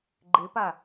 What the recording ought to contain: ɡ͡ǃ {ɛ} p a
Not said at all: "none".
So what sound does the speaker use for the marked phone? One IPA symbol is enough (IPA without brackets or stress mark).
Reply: e